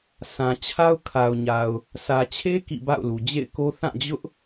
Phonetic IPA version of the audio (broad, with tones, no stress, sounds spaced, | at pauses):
s ã˨ t͡ɕʰ a˦ ʊ̯ kʰ a˨ ʊ̯ ɲ a˨ ʊ̯ | s ä˨ t͡ɕʰ e˦ k ḭ˦˨ b a̰˦˨ ʊ̯ l u˨ d͡ʑ ḛ˦˨ ɪ̯ k o˦ θ ã˦˨ d͡ʑ ʊ˦ ʔ